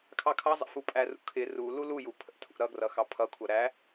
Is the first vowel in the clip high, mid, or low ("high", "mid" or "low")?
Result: low